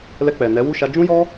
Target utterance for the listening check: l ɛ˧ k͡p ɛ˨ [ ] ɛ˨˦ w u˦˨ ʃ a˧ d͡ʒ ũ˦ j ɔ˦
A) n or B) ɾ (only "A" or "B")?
A